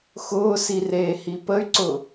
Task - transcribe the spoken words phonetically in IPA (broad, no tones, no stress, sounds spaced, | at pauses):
x ʊː s i r eː h i p ə y̯ ǀ ʊː